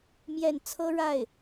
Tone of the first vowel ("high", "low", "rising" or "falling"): falling